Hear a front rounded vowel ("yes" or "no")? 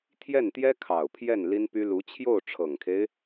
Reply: yes